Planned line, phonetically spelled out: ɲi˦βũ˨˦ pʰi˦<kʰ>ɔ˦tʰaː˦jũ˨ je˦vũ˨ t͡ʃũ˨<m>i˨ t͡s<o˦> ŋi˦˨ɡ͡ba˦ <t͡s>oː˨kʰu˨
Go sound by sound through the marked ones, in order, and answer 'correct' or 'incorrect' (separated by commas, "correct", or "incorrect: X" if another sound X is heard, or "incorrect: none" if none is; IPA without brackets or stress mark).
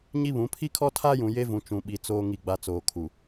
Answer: correct, incorrect: ɓ, incorrect: oː˦, correct